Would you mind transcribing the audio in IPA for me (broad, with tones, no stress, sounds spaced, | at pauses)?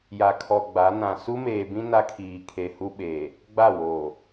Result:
j a˨ kʰ ɔ˨ ɡ͡b a˨˦ n ã˨ s u˦ m eː˨ b ĩ˦ n a˦ kʰ iː˨ kʰ e˨ h u˦ ɓ eː˨ | ɡ͡b a˦˨ w oː˨